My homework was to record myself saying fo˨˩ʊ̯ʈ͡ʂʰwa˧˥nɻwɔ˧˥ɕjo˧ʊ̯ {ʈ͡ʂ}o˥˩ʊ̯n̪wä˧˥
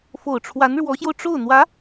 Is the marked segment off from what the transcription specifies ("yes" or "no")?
no